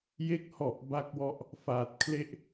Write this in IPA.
j e˦˥ k̚ h ɔ˨˩ ʔ b a˦˥ k̚ w ɔ˦˥ ʔ | f aː˨˩ t̚ kʰ l e˥˩ ʔ

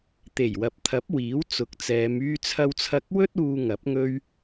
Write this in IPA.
t̪ e˨˩ j w ɐ˨ p̚ t̪ʰ ɐ˨˥ p̚ w iː˨˥ w t͡s ʊ˨˥ k̚ t͡s ɛː˨˧ m yː˧ t͡sʰ ɐ˧ w t͡sʰ ɐ˧ k̚ w ɵ˥ t̚ uː˧ ŋ ɐ˨˥ p̚ ŋ ɵ˥ ɥ

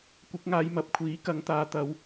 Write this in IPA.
kʷ ɪ˨˥ k̚ ŋ aː˨˧ j m ɐ˨ p̚ kʷʰ iː˨˥ k ɐ˨˧ ŋ t̪ aː˨ t̪ ɐ˨˧ w

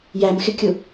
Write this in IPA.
j æ m x ɪ kʲ ʊ

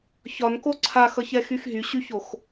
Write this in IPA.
ç ɒ n k o ǀʰ a x ʌ ç ɛ x y x ɦ y ɕ y ç o x

